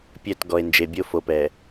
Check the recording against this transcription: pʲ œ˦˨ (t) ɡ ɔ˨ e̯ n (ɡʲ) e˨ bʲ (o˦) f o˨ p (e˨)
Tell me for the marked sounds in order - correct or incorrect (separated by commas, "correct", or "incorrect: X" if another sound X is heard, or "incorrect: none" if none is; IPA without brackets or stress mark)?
correct, incorrect: d͡ʒ, correct, incorrect: ɛ˨